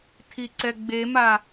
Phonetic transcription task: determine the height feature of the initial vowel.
high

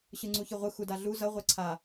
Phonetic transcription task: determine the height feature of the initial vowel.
high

